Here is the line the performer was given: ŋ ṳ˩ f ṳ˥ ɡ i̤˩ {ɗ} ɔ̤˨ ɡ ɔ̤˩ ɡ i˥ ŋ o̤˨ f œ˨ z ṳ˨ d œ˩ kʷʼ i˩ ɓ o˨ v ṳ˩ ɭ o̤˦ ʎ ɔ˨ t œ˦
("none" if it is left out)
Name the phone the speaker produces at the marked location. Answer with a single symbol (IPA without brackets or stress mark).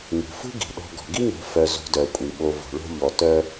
ɗ